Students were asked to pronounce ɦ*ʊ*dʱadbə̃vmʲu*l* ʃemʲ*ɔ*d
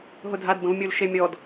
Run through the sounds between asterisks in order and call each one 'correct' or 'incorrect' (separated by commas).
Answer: correct, correct, correct